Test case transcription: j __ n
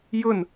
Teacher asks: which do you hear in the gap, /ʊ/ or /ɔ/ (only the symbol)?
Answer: ʊ